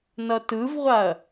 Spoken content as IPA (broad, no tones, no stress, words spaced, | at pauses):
nʌtɯvʁʷaɐ̯